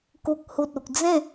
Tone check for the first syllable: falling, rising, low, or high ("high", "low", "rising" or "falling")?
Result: low